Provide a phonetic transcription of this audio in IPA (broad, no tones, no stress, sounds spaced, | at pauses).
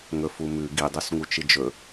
ŋ ɵ f u m ʉ ɡ i dˤ u s ŋ u t͡ʃ ɨ d͡ʒ ɵ